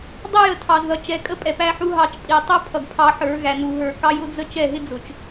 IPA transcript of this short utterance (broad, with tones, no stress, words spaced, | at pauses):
dˤʌ˦jə˨ tʰɑ˨zðʌ˨ t͡ʃɛ˨˦kʼə˦ pʼɛ˨pæ˦ħu˦ɦɑ˦˨t͡ʃ pʼi˨ tˤu˦pʰʌ˨ɡ pʰɑ˦ħə˞˨˦ɣæ˨ nu˨ɦə˞˨kɑ˦j ʊ˦d͡zə˦ t͡ʃɛ˦˨ɦɪ˦d͡zʊ˨t͡ʃ